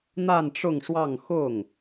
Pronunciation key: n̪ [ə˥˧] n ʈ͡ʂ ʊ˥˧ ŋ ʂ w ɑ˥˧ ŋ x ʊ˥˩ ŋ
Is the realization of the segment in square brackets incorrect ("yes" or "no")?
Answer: yes